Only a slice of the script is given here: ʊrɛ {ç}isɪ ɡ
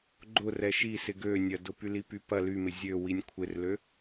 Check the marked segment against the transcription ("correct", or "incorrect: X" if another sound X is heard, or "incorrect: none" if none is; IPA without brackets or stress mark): incorrect: ʃ